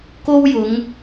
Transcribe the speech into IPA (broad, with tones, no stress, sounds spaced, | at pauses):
k o˥ w j ʊ˨˧ ŋ